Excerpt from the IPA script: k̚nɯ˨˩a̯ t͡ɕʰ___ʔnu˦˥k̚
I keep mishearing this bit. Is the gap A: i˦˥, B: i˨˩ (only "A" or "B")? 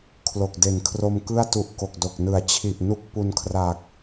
B